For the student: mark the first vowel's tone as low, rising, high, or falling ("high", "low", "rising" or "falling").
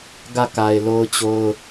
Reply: falling